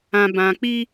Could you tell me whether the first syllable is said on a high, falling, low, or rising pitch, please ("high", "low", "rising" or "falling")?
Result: low